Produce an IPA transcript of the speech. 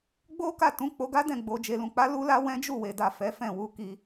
ɡ͡b o˦ k a˦˨ t ũ˨˦ k͡p o˧ ɡ a˦ d ɛ̃˦˨ ɡ͡b o˨ d͡ʒ e˨ l ũ˨ k͡p a˨˦ l u˦ l a˦ w ɛ̃˦ d͡ʒ u˦˨ w e˨ d a˨ f ɛ˨˦ f ɛ̃˦˨ w u˧ k i˧

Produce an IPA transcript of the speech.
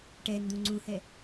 ʈ ɛ n d̪ ũ ŋ͡ǀ ũ h ɛ

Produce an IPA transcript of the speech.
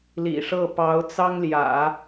l ḭ˨˩ ʂ ɤ˥˩ p ɑ˧˥ ʊ̯ t͡s ɑ˥ ŋ l j ä̰˨˩˦

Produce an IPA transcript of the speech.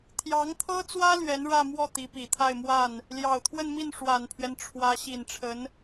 t̪ʰ j ɑ˧˥ ŋ t̪ʰ ɤ˥ t͡s w ä˥ l ɥ ɛ˧˥ n ɻ ä˥˧ m w ɔ˥˩ t̪ i˧˥ p i˨˩ t̪ʰ a˥˧ ɪ̯ m w a˥˩ n | l j ɑ˨˩ ʊ̯ t̪ʰ w ə˥˧ n m i˥˩ n ʂ w a˨˩ n pʰ ɥ ɛ˦ n ʈ͡ʂʰ w ä˧˥ ɕ i˨˩ n ʈ͡ʂʰ ə˧˥ n

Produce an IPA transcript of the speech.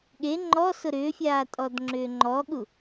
ɠ e ŋ͡ǃ ɔ s ʊ ɾ ʏː fʲ aː tʼ ɔ d ŋ͡ǁ ʏː ŋ͡ǃ ɔ ɠ u

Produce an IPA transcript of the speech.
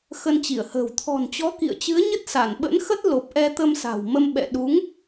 x ə˧ n t͡ɕ i˧˩ ə̯ h ə̤ː˨˩ w t̪ʰ ɔ̤˨˩ n t͡ɕ ɔ˨˦ k ḭ˧˨ ə̯ t͡ɕ ɨ˨˦ ə̯ ɲ ə˦˥ t̚ s a˧˩ n ɓ ə̰˧˥ n x ə˦˥ t̚ l o˨˩ p̚ ʔ ɛ˧ t̪ ə˧ m s a̤˨˩ w m ə˧ m ɓ ɛ̰˧˨ ɗ u˨˦ ŋ

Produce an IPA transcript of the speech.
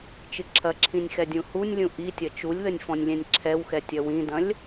t͡ʃ ɨ ǁʰ ɐ ǁʰ ĩ nʲ x ɛ dʲ ũ h u nʲ lʲ ũ ʔ i tʲ ɐ t͡ʃ u lʲ ð ɘ nʲ f ɔ̃ nʲ lʲ ɛ̃ nʲ ǁʰ ɛ w x ɛ tʲ ɐ w ĩ d ɐ̃ lʲ

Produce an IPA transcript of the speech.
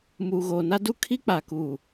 m uː˨ ɣ oː˨ n a˦ d u˦ kʰ i˦ k͡p a˨ k u˨

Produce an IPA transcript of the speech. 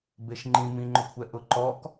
b e ʃ ŋ͡ǃ ĩ m ĩ ŋ͡ǃ ʊ kʷʰ ɛ ʔ ʊ ǃ ɔ k

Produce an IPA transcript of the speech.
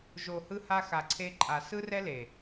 ʒ o˨ h ɯ˧ h a˧ x a˨ ǀʰ e˧ ǃʼ a˨ s ɯ˦ r ɛ˦ l e˨

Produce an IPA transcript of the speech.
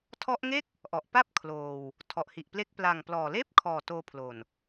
tʰ ɔ˦˥ ʔ ŋ e˥˩ k̚ | ʔ ɔ˨˩ ʔ p a˥˩ p̚ kʰ l oː˧ w | tʰ ɔ˨˩ ʔ h i˨˩ ʔ p l e˦˥ k̚ p l a˨˩ ŋ p l ɔː˨˩ l eː˥˩ p̚ kʰ ɔː˨˩ t oː˧ pʰ l o˨˩ n

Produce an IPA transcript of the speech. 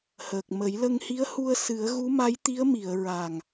h əː˨˩ k̚ m ə˨˩˦ j l ə˧ ŋ h i˧˥ ə̯ h u˧ ə̯ s ɨ˨˩˦ ə̯ ɣ u˧˥ m a˧˥ j t̪ i˧˥ ə̯ m i˨˩˨ ə̯ ɹ a˨˩ ŋ

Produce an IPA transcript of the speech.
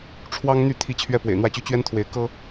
ʈ͡ʂʰ w ɑ˦ ŋ n̪ y˥˨ t̪ʰ i˥˨ t͡ɕʰ ɥ ɛ˦ p w ḛ˨˩ ɪ̯ n̪ w ä˥˨ t͡ɕ y˦ t͡ɕ ɥ ɛ˦ n t̪ʰ w e˨˦ ɪ̯ k ɤ˦

